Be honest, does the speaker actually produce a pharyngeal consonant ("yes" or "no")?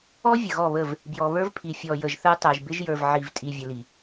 yes